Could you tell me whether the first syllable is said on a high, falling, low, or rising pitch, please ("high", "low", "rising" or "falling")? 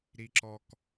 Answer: high